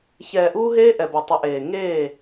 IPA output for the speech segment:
ç ɛː˨ ʔ uː˦ ɦ eː˦ ʔ ɛ˨ b a˨ tˤ ə˨˦ ʔ eː˨ ŋ eː˦˨

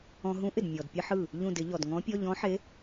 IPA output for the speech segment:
ɔ̃˧ ɦ ũ˧˥ ʔ ɪ˧˩ d mʲ ɔ˩ d pʲ ə˧ ħ ɯ˧˩ | ʎ ũ˧˩ d ɪ˨˩˦ ʎ ɔ˩ d ŋ ɔ̃˧˥ pʲ ɔ˧˥˧ ʎ ɔ̃˧˥ ħ e˧˥

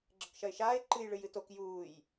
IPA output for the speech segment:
ɡ͡ǁ ɘ k ʃ ɐ ɪ̯ ʃ aː ɪ̯ ǃ ɨ j ɭ ɨ j ɨ t o k j uː j

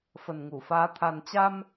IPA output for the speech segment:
f ə˨˩ n ŋ u˧˩ f aː˨˦ t̪ʰ a˨˩ n t͡ɕ a˧ m

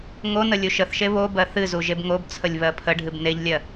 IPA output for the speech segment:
ŋ o n ə lʲ u ʃ ə θ ʃ e β o b ɜ θ ɨ z u ʒ e b ŋ o b t͡sʰ ə lʲ β ɜ pʰ ə ɖʱ ɨ b n e ʎ lʲ ɜ

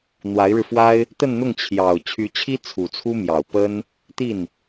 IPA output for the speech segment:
n̪ w a˧˥ ɪ̯ ɻ ɻ̩˧ f w a˥ ɪ̯ | t̪ ə˥˧ n n̪ ʊ˥˩ ŋ t͡ɕʰ j ɑ˨˩ ʊ̯ t͡ɕʰ y˧˥ t͡ɕʰ i˥ t͡sʰ u˨˩ t͡sʰ u˥ m j ɑ˨˩ ʊ̯ p ə˥ n | t̪ i˥˩ n

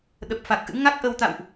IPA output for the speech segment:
ɗ ə˨˩ p̚ f a˨˩ k̚ ʔ ɨ̰˧˥ ŋ a˦˥ k̚ ʔ ə˧ w t̪ a̰˧˨ w ʔ

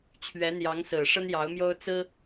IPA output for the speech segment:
t͡ɕʰ ɥ ɛ˧˥ n̪ j ɑ˧˥ ŋ s ɹ̩˨˩ ʂ ə˥ n j ɑ˧˥ ʊ̯ m j o˥ ʊ̯ t͡s ɹ̩˥

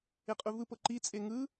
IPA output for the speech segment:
e qʼ u v ɯ p ɤ ǃ i t͡sʼ e ŋ ɯ

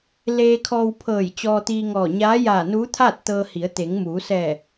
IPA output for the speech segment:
l eː˧ kʰ ɔː˧ w pʰ ɤː˧˩ j t͡ɕ ɔː˧ t̪ iː˧ ŋ ɔː˧˩ ɲ aː˧˥ j aː˧˩ n uː˧˥ t̪ʰ aː˥˨ t̚ t̪ ɤː˧ h i˩˧ ə̯ t̪ e˩˧ ŋ m uː˩˧ s ɛː˧˩

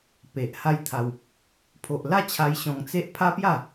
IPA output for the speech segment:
p e˨ ʔ h a˦ j t̪ʰ a˧ w | pʰ o˨ ʔ l a˥˧ t͡ɕʰ a˧ j ɕ ɔ̃˧ ŋ t͡s e˦ ʔ pʰ a˦ p j a˥˧

